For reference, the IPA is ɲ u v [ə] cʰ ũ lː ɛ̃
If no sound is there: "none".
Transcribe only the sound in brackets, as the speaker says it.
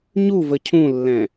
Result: ə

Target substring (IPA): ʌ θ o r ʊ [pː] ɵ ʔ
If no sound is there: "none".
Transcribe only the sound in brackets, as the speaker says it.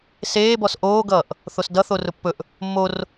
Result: pː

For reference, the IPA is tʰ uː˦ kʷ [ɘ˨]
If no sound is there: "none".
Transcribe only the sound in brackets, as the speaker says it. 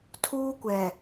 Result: ɛ˨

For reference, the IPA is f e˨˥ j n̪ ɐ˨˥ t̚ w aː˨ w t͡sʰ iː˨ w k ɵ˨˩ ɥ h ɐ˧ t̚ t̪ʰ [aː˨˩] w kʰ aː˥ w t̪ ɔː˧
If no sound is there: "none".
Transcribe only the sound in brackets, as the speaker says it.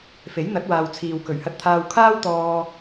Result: aː˧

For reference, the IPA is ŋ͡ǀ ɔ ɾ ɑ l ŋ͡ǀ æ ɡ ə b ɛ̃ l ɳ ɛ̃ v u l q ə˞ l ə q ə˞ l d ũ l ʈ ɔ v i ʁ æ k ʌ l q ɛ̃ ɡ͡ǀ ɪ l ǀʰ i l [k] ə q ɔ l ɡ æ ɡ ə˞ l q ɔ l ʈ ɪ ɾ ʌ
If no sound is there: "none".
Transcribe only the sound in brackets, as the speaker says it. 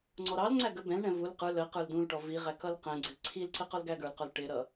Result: ǀ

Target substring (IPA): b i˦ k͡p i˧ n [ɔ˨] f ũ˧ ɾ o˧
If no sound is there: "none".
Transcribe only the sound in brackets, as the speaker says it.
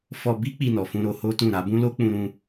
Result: ɔ˨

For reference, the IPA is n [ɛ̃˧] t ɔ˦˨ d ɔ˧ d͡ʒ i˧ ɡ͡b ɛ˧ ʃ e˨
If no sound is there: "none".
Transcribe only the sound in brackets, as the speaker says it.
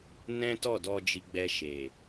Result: ɛ̃˦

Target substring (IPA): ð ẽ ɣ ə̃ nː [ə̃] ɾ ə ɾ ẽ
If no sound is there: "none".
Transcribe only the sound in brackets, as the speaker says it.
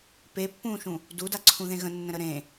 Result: ə̃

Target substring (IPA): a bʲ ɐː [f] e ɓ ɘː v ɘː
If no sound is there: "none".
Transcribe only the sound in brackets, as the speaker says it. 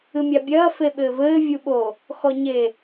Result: f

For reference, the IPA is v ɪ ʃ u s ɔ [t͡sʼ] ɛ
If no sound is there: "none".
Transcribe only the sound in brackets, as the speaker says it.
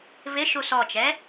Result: t͡ʃ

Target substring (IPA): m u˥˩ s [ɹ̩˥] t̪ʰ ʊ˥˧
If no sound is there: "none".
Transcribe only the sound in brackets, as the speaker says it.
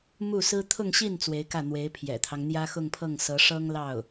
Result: ɹ̩˥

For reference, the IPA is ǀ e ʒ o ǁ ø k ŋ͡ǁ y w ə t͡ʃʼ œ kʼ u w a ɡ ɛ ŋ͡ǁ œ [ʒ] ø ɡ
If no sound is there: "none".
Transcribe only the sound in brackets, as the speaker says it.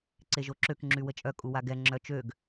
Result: t͡ʃ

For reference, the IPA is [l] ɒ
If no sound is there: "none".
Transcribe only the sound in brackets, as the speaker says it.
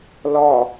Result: l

